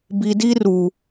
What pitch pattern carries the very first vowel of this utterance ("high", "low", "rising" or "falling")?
low